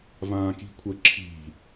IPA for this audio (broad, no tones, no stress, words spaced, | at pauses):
vãːki̤kʷʰə ǁʰi̤